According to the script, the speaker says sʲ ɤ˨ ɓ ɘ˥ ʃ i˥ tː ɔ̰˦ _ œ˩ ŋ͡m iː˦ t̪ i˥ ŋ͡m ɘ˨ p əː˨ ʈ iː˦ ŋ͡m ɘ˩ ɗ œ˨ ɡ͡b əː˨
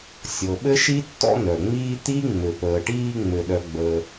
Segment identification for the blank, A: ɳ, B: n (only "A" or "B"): B